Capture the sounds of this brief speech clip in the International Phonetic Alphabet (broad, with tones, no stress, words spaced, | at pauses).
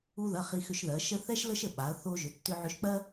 u˧ðɐ˩˧˩ χi˧xʏ˧ʃðɜ˩˧ ʃə˥ θɛ˥ʃ lə˥ʃə˥˩ɓa˩˧ɐ̯ θo˧ʒʏ˩˧tːʏ˧ ʕʏ˧ʃk͡pɜ˥